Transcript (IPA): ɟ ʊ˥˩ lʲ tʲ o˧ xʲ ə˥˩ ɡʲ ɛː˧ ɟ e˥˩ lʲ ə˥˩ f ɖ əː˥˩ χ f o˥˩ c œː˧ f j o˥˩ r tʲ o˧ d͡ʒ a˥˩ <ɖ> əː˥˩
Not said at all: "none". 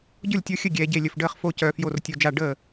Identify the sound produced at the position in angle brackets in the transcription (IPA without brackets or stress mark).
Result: ɖ